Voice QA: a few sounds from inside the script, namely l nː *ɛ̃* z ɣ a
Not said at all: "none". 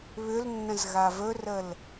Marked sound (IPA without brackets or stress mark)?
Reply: ə̃